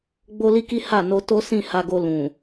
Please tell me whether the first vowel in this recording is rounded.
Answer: yes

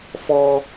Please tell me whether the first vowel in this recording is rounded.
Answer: yes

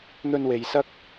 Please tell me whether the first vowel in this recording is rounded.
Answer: yes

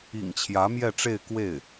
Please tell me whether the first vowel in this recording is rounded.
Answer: no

